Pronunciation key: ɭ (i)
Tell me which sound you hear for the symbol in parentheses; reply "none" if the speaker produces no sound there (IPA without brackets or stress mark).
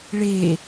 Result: e